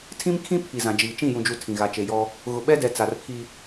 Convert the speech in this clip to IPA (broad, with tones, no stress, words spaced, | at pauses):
tʰĩ˦mkʰĩ˦ pʰi˨zã˨d͡ʒiː˨ t͡ʃĩ˦˨jũ˨d͡ʒu˨ tʰĩ˨ɣa˨ t͡ʃe˨jɔ˦ | ɣʊ˨ɓɛ˦dɛ˨ t͡sa˨rpʰi˦